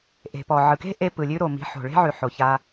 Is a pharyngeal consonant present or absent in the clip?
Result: present